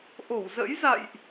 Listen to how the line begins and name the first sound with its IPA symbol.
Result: ʔ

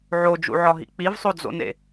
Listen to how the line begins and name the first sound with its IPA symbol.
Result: ʕ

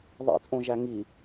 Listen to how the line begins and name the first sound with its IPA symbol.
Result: ðˤ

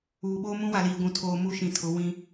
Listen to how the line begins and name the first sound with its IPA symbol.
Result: uː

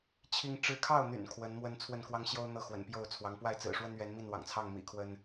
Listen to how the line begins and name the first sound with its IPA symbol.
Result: t͡ɕʰ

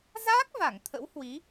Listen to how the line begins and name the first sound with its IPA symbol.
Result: z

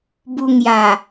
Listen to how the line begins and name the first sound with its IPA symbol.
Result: b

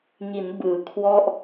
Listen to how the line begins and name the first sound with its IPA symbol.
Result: ŋ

